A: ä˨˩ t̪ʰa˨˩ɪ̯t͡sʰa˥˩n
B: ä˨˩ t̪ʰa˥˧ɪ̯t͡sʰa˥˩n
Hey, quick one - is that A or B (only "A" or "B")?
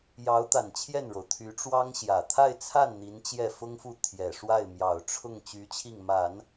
B